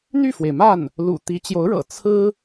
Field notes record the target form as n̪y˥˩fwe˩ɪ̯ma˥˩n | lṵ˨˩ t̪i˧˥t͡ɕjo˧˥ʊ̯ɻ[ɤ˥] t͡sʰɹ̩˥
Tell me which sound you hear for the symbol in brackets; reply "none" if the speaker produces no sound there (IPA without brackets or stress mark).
ɤ̰˨˩